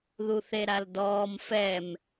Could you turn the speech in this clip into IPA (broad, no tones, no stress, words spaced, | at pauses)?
ðuθeɾaldɔːm fɛm